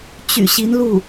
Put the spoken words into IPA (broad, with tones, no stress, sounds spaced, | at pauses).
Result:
t͡ɕ y̰˨˩ ɕ i˧˥ n l u˥˩